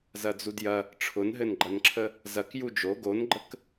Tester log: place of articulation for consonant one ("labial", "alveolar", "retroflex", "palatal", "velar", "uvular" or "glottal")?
alveolar